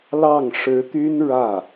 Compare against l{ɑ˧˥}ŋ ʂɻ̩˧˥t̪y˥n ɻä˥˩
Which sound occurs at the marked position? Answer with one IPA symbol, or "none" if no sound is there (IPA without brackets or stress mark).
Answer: ɑ˥˩